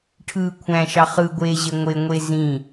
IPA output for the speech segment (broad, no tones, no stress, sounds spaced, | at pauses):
ʈʰ ɯː kʷʰ æ̃ ʃ ɑ χ ɯ ɡʷ eː ʑ e ŋʷ e ŋʷ e z ĩ